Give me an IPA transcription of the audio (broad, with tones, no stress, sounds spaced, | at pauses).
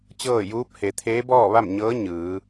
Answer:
t͡ɕ ɤː˥˨ j uː˧˥ p̚ h e˩˧ t̪ʰ eː˧˥ b ɔː˥˨ ʋ a˥˨ m ɲ ɤː˧˥ ɲ ɯː˩˧